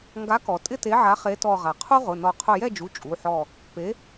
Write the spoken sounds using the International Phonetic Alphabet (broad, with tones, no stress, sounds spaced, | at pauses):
ŋ ɡ a˨˥ k ɔ˩ tʼ ɪ˥˨ t e˨˥ ʕ a˨˥ χ e˨˥ t ɔ˧˩ ʁ a˩ qʰ u˥ ʁ ʊ˩˧˩ n ɔ˧˩ qʰ ʊ˧˩ j ɛ˥˨ d͡ʒ u˩˧˩ t͡ʃʼ u˩˧˩ ħ ɔ˧˩ | p e˨˥